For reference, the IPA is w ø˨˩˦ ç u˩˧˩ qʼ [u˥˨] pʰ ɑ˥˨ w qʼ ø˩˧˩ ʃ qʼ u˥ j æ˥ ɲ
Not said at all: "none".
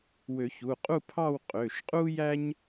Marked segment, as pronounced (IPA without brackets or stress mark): u˥˨